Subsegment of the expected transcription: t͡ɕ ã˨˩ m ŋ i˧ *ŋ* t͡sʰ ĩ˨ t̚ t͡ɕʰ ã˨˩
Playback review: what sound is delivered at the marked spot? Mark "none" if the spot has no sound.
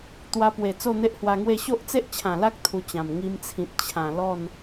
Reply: m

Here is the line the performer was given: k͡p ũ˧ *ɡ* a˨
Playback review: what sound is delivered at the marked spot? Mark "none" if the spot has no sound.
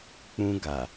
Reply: ɡ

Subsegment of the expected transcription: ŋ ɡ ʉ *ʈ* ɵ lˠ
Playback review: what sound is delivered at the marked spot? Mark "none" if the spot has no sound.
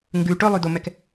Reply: ʈ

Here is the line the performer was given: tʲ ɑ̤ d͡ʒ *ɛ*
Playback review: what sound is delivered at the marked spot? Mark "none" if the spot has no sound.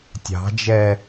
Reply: ɛ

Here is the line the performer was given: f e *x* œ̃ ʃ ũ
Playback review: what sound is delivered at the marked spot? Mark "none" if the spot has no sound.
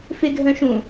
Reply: ɡʱ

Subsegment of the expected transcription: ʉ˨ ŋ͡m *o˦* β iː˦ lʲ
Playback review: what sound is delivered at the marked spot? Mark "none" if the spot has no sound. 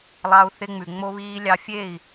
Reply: o˦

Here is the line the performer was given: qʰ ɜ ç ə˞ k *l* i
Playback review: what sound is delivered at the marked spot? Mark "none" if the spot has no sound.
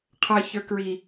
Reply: ɹ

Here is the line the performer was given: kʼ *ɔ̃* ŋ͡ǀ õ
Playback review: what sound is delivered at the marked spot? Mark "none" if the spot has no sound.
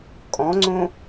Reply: ɔ̃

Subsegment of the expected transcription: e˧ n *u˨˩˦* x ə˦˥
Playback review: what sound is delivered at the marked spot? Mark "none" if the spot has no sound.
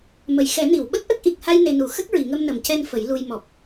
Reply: u˨˩˦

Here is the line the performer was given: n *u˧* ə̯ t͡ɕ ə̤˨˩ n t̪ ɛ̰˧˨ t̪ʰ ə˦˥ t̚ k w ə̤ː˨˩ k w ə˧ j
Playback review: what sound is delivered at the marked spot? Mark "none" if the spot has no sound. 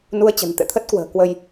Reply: u˧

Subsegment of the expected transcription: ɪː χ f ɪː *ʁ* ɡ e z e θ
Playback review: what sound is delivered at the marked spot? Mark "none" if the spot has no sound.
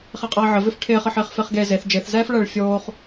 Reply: χ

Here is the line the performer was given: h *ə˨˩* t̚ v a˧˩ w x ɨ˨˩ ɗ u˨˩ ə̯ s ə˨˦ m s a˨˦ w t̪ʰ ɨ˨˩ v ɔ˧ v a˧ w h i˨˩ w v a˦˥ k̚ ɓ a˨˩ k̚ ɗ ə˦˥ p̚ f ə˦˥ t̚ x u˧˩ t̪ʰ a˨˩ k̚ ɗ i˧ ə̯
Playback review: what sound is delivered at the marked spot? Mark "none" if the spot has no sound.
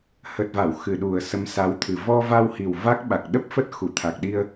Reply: ə˨˩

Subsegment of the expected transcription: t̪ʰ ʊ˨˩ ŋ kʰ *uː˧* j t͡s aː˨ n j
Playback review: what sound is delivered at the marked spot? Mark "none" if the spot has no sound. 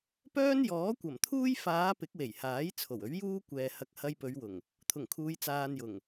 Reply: uː˨˧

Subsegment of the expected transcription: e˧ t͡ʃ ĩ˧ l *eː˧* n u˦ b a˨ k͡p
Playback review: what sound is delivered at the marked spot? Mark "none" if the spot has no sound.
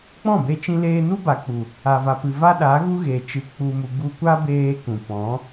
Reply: eː˧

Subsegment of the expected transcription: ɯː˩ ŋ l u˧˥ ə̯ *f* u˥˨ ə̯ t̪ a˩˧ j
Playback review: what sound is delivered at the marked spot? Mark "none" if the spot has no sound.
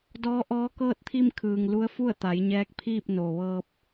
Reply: f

